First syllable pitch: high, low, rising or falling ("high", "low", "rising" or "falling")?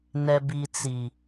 low